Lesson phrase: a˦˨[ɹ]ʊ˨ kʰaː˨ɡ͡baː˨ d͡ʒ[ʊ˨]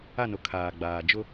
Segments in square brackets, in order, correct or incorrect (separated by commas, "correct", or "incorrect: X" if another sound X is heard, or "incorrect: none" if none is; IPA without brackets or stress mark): incorrect: n, incorrect: ʊ˦